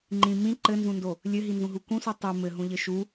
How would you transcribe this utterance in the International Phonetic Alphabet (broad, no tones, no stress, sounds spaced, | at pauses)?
ŋ͡ǃ ĩ m ĩ ǃ ɘ n z ũ n d o | lʲ ɘ ɦ i n z ũ ɦ u k ũ s u tˤ u m ɘ ɦ ũ ʎ ɘ ʃ u